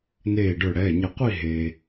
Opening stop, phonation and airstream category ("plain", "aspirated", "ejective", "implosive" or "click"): plain